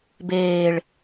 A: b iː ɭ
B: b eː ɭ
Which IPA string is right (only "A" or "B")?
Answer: B